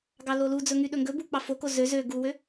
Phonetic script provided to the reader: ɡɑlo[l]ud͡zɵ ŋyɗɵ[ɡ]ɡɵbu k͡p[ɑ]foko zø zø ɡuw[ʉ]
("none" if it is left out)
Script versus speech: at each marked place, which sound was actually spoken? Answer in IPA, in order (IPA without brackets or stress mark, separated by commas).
l, ŋ, ɑ, ø